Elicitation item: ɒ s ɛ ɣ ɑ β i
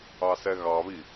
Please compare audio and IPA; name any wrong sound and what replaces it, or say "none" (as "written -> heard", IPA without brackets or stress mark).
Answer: ɒ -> ɑ